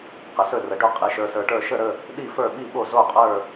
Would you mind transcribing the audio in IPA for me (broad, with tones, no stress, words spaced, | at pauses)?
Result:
qə˨sɵ˦˨rə˨ɖɵ˦˨ qʼi˨ʃə˞˨sə˞˨ʈə˞˦˨ ʃə˦˨ɾə˦˨ | ɗi˦˨fə˞˦˨ ɓi˦˨ɓo˦˨zo˦˨qʼə˞˦˨